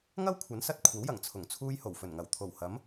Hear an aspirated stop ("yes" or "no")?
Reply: yes